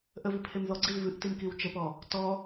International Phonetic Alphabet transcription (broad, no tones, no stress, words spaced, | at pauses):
ʔəvi pʰemðɔɡ͡ǀil vɨʔtim kiwt͡ʃəpɔ | tɔ